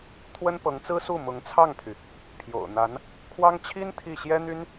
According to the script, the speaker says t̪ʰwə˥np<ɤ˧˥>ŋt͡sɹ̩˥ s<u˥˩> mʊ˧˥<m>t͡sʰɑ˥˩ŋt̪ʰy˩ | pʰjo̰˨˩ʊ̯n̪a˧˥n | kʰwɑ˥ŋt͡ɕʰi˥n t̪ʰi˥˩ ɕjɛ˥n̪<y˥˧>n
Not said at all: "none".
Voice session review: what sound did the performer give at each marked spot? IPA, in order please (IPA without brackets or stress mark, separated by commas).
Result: ɤ˧˥, u˥˩, ŋ, y˥